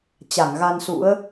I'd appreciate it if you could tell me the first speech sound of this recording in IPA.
t͡ɕ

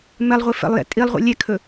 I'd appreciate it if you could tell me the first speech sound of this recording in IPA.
m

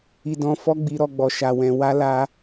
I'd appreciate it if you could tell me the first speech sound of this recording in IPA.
i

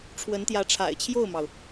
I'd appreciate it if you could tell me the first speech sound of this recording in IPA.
ʈ͡ʂʰ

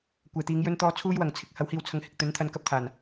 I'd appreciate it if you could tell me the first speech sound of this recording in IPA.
kʷ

